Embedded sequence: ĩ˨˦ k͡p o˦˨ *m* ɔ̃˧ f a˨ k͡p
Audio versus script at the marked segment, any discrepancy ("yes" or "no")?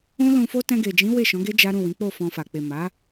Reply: yes